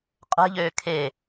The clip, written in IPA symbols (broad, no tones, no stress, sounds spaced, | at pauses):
qʼ ɛ̤ ʎ øː kʰ e